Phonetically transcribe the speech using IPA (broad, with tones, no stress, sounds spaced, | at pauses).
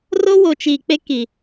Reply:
r o˦ w o˨ t͡ʃ iː˨ k͡p e˦ k i˨